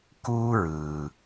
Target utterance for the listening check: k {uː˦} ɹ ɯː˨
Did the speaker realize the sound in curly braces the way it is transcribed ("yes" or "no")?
yes